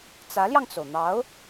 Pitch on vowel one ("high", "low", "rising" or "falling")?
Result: rising